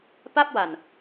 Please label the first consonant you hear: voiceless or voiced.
voiceless